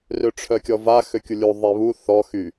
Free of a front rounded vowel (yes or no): no